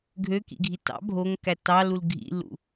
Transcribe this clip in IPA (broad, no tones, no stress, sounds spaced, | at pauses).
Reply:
ɡʱ ø k ḭ ɡʱ i t ɑ̰ bʱ o ŋ k æ t ɑ l u l ɡʱ ḭ lː ṵ